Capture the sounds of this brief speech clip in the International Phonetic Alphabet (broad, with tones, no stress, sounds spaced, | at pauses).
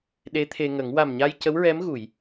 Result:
ɗ e˧˥ t̪ʰ e˧ ŋ ə˨˩˦ ŋ w a˨˩ m ɲ a˧ j c ə˧˥ w ɹ ɛ˧˥ m ɣ u˨˩˨ j